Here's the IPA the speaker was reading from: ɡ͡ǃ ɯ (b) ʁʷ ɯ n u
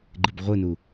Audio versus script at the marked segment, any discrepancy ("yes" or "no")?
no